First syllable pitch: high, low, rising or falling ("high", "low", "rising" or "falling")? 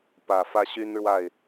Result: low